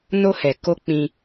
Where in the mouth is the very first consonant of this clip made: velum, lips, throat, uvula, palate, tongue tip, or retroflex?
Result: tongue tip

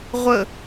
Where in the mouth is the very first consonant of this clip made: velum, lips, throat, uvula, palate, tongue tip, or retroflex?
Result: uvula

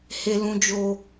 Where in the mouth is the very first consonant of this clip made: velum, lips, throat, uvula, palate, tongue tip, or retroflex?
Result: throat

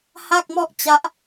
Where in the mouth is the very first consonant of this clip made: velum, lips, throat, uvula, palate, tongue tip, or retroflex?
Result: throat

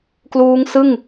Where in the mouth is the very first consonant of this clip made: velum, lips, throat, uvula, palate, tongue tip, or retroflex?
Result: velum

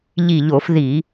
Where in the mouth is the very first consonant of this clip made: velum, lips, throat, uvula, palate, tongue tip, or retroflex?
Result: palate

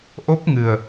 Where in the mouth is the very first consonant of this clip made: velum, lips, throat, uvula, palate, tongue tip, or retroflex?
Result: throat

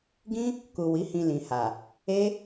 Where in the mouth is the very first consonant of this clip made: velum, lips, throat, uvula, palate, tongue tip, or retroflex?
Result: velum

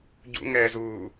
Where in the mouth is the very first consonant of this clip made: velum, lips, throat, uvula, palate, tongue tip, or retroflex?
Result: palate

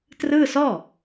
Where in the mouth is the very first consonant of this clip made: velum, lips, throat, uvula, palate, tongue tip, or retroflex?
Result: tongue tip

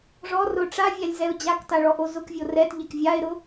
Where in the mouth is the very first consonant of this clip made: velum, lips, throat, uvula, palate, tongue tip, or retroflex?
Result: retroflex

